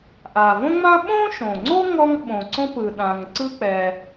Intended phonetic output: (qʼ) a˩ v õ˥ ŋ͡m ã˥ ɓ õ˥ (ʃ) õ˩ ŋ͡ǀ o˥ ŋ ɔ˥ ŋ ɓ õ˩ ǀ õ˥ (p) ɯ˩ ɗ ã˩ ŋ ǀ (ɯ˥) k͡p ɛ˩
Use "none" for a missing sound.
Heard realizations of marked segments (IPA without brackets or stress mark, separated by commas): ʔ, ʃ, p, ɯ˥